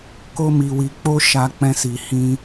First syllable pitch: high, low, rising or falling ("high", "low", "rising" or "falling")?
high